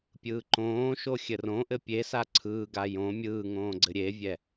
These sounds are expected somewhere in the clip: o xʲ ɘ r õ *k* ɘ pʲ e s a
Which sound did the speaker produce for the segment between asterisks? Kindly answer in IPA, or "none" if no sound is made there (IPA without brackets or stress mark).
ʔ